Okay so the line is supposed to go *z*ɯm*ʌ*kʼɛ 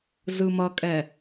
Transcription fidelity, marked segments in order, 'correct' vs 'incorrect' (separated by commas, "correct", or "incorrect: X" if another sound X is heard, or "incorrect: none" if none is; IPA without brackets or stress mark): correct, correct